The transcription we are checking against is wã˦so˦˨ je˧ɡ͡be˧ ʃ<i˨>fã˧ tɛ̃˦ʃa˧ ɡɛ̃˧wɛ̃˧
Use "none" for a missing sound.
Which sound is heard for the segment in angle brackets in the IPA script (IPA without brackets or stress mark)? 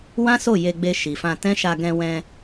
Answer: i˨